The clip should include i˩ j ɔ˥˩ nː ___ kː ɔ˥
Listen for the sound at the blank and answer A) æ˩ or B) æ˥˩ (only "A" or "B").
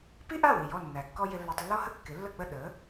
A